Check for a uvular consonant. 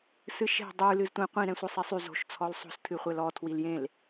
present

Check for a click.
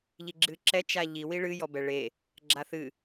present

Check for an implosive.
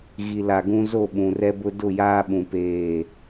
present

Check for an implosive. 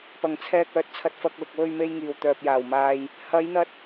absent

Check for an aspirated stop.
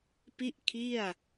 present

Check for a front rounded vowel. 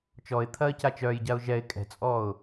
present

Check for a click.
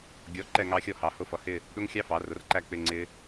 present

